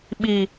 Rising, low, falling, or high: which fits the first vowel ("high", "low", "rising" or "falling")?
low